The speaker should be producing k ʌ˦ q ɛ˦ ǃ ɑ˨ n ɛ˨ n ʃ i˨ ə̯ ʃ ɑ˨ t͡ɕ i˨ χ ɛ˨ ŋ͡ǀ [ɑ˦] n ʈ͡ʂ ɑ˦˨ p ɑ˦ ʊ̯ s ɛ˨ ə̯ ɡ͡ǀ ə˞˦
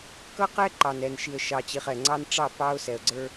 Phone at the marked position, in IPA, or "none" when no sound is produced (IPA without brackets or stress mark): ɑ˦